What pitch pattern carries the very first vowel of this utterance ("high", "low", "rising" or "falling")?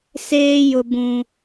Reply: high